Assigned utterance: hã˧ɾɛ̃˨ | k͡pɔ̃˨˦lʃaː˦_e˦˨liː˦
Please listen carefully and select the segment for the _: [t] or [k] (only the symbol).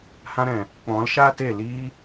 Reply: t